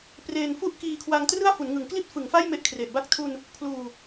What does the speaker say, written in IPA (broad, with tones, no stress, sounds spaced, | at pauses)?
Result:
p r eː˧ n f u˥˩ ʔ k iː˧ kʰ w a˧ ŋ t r ɯ˥˩ a̯ f u˩˦ n ŋ ɯ˩˦ ŋ k l i˥˩ t̚ f ɯ˩˦ ŋ f a˥˩ j m e˥˩ ʔ kʰ r e˨˩ ʔ b a˥˩ k̚ tʰ u˧ n | pʰ l uː˧